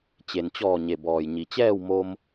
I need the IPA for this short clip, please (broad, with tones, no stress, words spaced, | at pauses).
t͡ɕe˩nt͡ɕɔː˧˩ ɲe˩bɔː˩jɲi˩ t͡ɕɛː˥˨wmo˧m